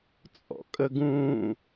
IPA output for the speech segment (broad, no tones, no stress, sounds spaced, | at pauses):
t͡sʼ ɔ̰ kʼ ə ɡ ũː